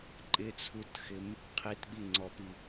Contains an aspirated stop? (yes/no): yes